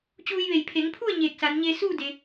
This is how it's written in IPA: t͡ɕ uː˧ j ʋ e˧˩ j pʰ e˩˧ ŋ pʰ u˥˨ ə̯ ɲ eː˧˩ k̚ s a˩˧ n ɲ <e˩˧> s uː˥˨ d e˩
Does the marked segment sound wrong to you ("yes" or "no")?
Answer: yes